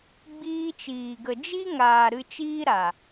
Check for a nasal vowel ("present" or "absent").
absent